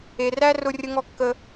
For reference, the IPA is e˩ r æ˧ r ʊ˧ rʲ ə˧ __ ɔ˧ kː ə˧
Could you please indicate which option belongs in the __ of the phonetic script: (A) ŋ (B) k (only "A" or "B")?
A